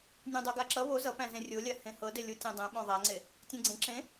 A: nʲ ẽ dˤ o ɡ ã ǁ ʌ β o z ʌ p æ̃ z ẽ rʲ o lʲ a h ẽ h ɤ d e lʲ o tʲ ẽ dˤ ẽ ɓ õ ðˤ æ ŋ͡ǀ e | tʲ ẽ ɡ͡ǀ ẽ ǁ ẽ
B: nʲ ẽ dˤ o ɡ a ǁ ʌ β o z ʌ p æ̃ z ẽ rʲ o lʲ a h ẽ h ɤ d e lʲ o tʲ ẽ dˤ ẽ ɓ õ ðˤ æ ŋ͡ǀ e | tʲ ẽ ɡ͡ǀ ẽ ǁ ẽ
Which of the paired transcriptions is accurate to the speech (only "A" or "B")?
B